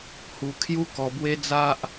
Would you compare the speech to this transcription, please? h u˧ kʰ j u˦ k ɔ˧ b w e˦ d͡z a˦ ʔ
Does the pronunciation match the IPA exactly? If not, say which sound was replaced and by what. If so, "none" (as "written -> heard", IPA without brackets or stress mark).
none